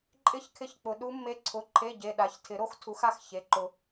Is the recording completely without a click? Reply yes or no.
no